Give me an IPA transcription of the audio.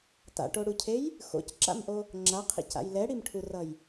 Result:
t a̰ ʈ o ɽ u cʰ e j | x o̰ c ǁ a̰ m ʔ o | ŋ͡ǁ a qʰ ḭ c a̰ j l ɛ ɽ i m ʈʰ u r ʌ j

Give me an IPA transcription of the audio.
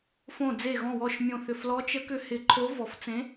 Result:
f õ˧˩ d͡z e˧˩ ɣ ɔ̃˧˩ w ɔ˧˩ ʃ mʲ õ˧˩ θ ʏ˧˩ f l ɔ˧˥ t͡ʃ ə˧˥ k ʏ˧˥ h ɪ˧˩ ǃʰ o˧˥ v ɔ˧˩ f t͡s ẽ˧˥

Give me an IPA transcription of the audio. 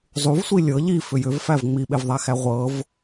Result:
zˤ u v sʷ i lʲ ɤ ʎ i f ʏ j ʏ v f æ v ŋ͡m i ɓ e v ðˤ æ x æ ʁʷ ɤ v

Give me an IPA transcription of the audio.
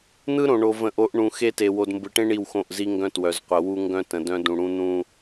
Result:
n̪ ɯ˦ ɾ õ˨ ɳ o˨ v ə̃˨ ʔ o˨˦ ʔ ɳ ũ˨ x e˦ t e˨ w o˨ d m b ɯ˨ ʈ ẽ˦ ɳ i˦˨ w x õ˦˨ ʔ z i˦ ŋ ɡ œ̃˦ t w œ˨ z qʷ ə˨ w u˦ ŋ ɡ œ̃˦ t ə̃˨ d œ̃˦ d ũ˨ ɽ ũ˦ n̪ ũ˦

